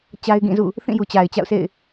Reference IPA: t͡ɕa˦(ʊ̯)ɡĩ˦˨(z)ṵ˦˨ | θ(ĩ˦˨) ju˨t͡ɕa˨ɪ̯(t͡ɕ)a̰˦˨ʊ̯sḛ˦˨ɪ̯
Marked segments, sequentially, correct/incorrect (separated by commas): incorrect, correct, correct, correct